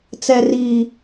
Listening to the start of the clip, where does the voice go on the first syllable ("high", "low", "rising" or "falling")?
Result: high